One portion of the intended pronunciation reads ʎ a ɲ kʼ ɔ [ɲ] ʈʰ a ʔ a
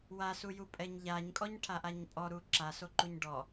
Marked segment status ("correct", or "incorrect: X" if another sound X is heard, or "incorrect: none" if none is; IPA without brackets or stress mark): correct